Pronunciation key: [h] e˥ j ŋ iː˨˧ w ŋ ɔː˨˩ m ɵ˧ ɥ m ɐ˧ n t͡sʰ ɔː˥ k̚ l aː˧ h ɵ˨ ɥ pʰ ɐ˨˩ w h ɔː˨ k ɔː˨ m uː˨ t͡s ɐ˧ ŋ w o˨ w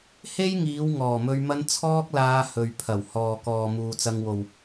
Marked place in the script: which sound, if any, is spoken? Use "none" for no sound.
h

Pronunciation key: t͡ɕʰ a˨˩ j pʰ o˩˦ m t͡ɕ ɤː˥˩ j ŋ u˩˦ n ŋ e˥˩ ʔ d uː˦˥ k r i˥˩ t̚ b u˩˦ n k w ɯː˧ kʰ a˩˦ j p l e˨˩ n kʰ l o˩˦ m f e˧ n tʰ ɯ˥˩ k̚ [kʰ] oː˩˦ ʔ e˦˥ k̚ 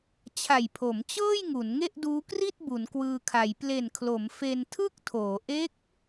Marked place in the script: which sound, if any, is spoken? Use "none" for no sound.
tʰ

